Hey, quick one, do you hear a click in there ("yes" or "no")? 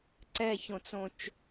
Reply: yes